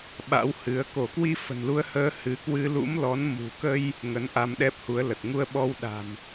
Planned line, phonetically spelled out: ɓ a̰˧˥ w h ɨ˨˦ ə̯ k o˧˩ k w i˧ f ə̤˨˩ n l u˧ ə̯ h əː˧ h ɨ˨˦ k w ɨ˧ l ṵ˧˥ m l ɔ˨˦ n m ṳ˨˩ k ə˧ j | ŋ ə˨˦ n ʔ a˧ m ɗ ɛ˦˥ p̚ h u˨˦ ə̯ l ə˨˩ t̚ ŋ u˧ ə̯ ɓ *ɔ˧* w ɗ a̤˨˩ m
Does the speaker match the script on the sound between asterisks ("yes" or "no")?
yes